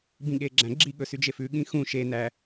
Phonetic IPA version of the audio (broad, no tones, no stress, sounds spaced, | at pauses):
b ĩ ɠ e ɡ͡ǁ æ̃ ɡ͡ǁ i ɠ ɵ s y d͡ʒ e f ʉ ɠ ĩ x ũ ʃ e n æ